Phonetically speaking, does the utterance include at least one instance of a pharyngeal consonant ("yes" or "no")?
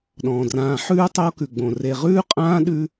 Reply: yes